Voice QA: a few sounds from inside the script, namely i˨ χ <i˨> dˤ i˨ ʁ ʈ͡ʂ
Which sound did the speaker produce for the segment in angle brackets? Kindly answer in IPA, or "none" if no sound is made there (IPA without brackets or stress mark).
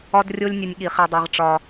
i˨